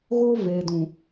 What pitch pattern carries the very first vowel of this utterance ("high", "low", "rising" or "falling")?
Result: high